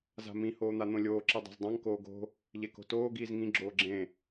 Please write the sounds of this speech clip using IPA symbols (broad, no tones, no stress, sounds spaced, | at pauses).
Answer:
z a̤ m ĩ h oː n̪ a n̪ õ lʲ oː ǁ i dˤ a̤ z dˤ ã ŋ k oː ɡ o̤ | ʎ e k o̤ t oː ɡ iː z ŋ ĩ ɡ͡ǁ oː ɡ͡ǁ ẽ